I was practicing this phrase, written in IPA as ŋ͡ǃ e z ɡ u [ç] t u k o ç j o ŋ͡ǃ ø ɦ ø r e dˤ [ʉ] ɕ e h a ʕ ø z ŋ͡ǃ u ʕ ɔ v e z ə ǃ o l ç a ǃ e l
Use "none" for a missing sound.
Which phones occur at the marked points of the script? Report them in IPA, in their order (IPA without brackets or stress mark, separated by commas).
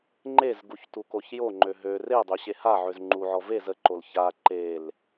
ç, ø